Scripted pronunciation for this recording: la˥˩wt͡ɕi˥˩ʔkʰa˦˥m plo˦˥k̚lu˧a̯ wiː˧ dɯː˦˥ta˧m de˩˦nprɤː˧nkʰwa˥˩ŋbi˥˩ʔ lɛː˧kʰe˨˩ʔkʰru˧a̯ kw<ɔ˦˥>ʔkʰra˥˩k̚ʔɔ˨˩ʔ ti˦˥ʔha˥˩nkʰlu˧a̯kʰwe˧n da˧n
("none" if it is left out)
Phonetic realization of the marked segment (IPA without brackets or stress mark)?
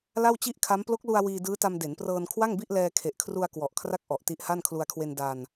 ɔ˨˩